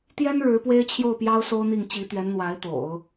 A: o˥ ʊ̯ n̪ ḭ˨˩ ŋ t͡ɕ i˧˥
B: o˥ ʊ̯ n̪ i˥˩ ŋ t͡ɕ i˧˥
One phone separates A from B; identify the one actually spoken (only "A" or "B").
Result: B